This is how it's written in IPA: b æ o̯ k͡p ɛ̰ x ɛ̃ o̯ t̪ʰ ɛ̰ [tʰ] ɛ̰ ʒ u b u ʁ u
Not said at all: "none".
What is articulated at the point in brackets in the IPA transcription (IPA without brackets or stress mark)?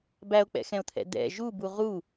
d̪